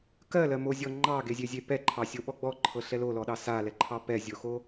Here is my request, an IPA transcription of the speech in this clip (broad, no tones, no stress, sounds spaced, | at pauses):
k ɜ l ɜ m o zʲ ɔ ŋ͡ǃ ɑ ɡ e zʲ e zʲ e p ɛ ǃʰ ɑ sʲ o ɓ ɔ ɡ͡b ɔ ǃʰ ɤ ɬ ɛ l o l ɔ ɗ ɑ s a l ɛ ǃʰ ɑ p ɛ zʲ o x o